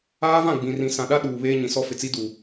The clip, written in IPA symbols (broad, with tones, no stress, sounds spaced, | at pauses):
aː˦ v ã˦˨ ɡ͡b ĩ˨ r ĩ˨ s ã˨ ɗ a˦ ɗ uː˨ β eː˦ ɲ ĩ˨ s ɔ˦ f ɪ˨ t͡s i˦ d u˨